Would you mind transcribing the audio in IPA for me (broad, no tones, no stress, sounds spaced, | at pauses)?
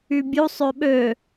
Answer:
y bʲ u sˤ ø ɓ ø